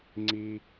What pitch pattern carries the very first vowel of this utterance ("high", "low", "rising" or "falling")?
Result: high